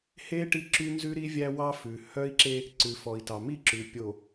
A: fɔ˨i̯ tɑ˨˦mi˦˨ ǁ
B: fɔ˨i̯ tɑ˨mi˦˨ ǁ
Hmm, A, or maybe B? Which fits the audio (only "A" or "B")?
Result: B